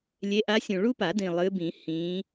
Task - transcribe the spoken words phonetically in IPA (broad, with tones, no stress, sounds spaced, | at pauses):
lʲ e˨˦ ʔ a˨˦ sʲ ũ˨˩ ɭ u˥ p a˨˩˦ d ĩ˨˩ lˠ ɨ˨˦ b ĩ˨˩˦ h ĩ˨˦